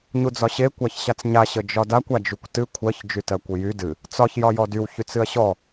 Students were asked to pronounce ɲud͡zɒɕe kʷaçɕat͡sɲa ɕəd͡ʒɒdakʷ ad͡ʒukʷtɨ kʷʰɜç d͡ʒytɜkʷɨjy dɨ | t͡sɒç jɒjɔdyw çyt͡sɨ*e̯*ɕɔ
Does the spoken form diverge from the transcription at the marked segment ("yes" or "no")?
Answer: yes